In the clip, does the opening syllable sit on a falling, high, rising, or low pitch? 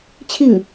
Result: falling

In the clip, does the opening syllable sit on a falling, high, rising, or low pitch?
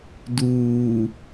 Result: low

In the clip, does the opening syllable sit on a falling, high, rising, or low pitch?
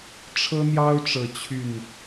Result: high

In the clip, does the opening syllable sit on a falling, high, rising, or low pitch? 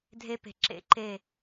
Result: high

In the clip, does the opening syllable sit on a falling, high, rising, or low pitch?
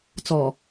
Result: low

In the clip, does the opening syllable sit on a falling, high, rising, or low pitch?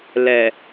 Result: low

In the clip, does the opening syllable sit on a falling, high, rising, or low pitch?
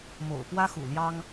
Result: low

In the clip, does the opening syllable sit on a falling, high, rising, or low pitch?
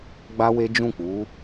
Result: high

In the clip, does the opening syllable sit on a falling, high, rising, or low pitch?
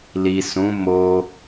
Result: low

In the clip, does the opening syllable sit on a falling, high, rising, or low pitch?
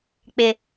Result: low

